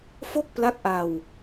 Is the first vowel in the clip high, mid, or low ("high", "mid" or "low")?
mid